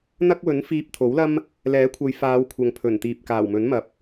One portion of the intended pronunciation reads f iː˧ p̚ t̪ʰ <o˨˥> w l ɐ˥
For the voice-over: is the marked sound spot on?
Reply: yes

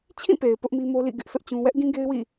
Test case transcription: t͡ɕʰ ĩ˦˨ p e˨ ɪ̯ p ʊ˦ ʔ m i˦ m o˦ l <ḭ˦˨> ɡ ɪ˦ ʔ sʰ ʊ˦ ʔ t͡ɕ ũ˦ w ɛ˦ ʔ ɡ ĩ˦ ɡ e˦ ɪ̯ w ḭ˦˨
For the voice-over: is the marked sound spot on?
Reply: yes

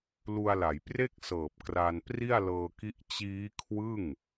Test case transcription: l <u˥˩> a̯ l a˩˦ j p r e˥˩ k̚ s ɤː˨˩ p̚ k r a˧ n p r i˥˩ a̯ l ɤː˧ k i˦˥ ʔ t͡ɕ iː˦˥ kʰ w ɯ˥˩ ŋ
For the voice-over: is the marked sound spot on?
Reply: no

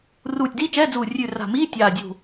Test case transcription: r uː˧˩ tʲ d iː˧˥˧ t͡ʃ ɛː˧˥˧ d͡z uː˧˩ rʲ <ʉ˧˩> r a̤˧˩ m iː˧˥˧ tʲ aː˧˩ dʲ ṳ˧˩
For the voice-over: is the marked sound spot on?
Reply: yes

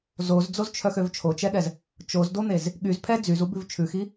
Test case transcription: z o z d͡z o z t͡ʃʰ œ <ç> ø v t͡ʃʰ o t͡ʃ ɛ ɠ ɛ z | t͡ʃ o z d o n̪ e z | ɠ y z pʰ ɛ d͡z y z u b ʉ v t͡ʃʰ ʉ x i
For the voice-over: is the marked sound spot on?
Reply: no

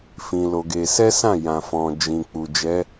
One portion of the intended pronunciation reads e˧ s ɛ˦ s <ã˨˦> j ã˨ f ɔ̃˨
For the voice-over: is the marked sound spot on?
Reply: no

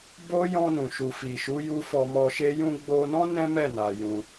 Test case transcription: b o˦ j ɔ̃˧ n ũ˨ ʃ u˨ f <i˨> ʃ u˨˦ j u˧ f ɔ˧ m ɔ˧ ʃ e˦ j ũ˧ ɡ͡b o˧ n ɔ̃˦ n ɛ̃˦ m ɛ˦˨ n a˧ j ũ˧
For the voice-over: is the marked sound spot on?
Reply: yes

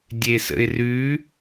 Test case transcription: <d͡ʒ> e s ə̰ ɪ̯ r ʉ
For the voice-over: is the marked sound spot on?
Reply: no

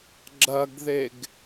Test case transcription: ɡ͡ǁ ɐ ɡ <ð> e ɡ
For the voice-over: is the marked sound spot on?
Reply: yes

